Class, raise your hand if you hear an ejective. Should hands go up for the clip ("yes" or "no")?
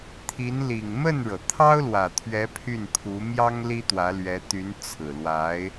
no